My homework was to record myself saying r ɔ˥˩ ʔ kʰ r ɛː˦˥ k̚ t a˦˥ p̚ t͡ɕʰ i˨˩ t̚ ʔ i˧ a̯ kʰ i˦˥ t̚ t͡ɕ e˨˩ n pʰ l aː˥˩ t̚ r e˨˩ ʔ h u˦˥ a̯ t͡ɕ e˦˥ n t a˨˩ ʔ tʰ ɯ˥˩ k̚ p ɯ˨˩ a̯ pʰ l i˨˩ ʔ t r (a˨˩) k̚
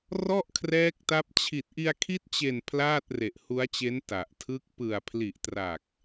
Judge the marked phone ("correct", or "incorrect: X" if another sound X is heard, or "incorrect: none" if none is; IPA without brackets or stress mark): correct